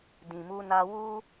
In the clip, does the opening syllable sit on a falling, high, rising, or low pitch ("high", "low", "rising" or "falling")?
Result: low